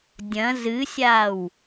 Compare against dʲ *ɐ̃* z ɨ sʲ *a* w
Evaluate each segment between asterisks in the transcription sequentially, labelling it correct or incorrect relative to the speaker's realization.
correct, correct

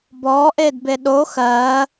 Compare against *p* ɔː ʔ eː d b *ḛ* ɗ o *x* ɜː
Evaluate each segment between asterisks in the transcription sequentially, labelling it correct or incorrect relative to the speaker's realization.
incorrect: b, incorrect: e, correct

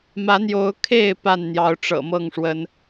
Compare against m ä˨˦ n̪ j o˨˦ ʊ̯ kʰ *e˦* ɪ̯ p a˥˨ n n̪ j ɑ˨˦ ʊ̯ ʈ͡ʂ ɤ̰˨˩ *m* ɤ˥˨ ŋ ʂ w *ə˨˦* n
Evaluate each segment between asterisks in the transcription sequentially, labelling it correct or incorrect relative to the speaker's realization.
incorrect: e˥˨, correct, correct

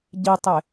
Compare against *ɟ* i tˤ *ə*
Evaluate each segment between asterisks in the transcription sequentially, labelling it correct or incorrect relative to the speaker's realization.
correct, incorrect: ɪ

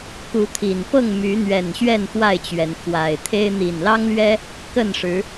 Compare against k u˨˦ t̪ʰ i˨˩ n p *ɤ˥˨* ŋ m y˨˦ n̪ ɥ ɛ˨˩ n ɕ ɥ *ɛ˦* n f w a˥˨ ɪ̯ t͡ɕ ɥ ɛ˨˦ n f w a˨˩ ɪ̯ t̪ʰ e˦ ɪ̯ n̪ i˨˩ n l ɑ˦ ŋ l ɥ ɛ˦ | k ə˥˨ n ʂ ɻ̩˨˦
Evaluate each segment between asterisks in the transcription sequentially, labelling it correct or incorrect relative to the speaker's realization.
correct, incorrect: ɛ˥˨

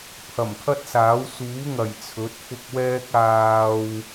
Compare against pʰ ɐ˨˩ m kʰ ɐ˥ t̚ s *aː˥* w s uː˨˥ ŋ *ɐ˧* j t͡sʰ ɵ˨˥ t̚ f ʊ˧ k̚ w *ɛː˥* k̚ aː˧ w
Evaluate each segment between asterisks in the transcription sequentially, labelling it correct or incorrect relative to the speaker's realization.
incorrect: aː˨˥, incorrect: ɐ˨˩, correct

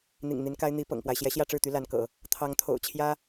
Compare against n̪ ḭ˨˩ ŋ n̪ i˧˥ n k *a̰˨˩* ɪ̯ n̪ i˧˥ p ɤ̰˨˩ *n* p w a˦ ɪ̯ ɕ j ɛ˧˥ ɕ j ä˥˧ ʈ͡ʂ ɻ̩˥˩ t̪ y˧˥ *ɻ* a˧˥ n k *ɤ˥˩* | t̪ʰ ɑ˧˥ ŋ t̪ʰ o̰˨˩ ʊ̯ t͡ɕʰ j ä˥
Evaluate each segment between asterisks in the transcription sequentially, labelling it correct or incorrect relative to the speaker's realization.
incorrect: a˥, incorrect: ŋ, incorrect: l, incorrect: ɤ̰˨˩˦

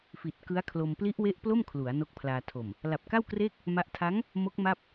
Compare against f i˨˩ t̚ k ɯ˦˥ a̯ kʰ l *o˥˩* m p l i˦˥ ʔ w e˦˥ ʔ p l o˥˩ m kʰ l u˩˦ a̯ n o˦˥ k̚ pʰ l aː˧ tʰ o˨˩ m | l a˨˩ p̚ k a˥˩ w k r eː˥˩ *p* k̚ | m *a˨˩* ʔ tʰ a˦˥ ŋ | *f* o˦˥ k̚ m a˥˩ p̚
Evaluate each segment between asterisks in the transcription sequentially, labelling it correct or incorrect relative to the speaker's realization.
incorrect: o˧, incorrect: none, incorrect: a˦˥, incorrect: m

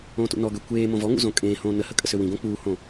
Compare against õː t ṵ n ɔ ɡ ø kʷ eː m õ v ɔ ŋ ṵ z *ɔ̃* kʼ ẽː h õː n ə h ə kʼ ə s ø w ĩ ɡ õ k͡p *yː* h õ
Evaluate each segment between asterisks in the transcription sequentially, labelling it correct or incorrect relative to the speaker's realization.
incorrect: õ, incorrect: uː

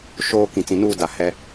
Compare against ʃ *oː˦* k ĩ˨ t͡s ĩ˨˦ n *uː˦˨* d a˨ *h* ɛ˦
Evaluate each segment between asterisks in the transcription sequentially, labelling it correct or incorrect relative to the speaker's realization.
incorrect: oː˨, correct, correct

